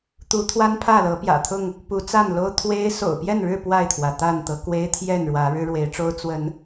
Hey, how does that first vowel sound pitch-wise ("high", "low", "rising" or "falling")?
rising